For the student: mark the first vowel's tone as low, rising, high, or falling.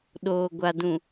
low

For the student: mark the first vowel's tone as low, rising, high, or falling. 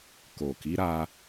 low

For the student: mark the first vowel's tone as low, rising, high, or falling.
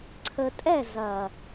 low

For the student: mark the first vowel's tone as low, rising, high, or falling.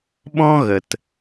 high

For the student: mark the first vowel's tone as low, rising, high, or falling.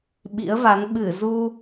rising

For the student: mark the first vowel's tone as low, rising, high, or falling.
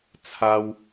high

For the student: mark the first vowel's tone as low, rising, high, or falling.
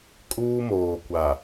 high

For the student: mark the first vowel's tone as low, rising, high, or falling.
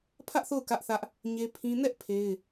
high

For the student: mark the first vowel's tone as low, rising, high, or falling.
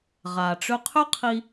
low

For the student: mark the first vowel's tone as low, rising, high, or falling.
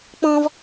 high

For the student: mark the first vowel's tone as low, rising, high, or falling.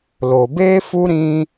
low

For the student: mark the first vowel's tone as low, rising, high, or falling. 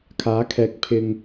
rising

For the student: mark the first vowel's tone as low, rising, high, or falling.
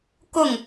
falling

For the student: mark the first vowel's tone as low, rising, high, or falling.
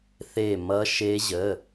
falling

